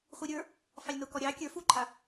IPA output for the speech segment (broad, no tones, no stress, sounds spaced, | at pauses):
χʷ i ɾʲ ə˞ | f ɑ lʲ n o k ɔ ɾʲ ɑ kʲ ə˞ f u ǃʰ a